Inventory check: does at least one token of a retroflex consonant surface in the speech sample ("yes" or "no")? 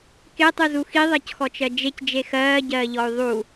no